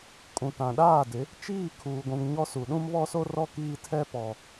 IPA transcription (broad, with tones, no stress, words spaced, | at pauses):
kʼũ˨tã˨ɗaː˦˨dɪ˨˦ | t͡ʃiː˦˨ kʰuː˨ɡʷũ˨ŋ ɲɔ˦su˨ ɗũ˦mβɔ˦so˦rɔ˦ kiː˦tʰɛ˦pɔ˨